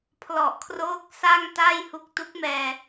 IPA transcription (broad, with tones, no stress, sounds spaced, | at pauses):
pʰ l ɔ˨˩ ʔ kʰ r oː˦˥ k̚ s a˥˩ ŋ t a˥˩ j h u˦˥ k̚ t u˦˥ k̚ m ɛː˧